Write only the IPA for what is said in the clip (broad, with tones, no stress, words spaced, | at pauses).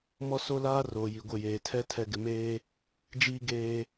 mɔ˦so˦laː˦ roː˨ji˨ɡʷɪ˦˨ jeː˨tʰɛ˦ tʰɛ˨ɡɪ˨meː˦ | d͡ʒiː˦ ɡeː˦